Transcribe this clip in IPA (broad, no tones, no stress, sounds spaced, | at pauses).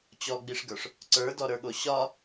t͡ɕ ɔ ɡ͡b i ʂ ɡ ə˞ ʂ | ǀ ə˞ d ɔ ɾ ə˞ ɠ o ɕ ɒ